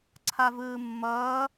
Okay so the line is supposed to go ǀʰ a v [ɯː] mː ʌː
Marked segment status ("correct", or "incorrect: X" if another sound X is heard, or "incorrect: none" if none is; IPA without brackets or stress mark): correct